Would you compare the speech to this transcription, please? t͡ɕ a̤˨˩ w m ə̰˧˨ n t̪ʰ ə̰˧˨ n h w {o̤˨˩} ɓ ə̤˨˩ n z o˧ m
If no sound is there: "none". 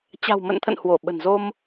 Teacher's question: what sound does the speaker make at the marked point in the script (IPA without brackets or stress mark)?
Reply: o˧˩